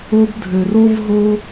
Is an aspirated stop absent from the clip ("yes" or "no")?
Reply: yes